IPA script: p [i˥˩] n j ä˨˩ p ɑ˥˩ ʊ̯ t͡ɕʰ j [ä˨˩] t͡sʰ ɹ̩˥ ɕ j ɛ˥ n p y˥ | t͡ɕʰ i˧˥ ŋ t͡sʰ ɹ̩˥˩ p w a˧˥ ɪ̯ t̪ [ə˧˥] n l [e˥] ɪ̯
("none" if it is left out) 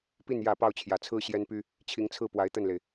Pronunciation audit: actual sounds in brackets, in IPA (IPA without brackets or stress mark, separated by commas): i˥˩, ä˨˩, ə˥˩, e˩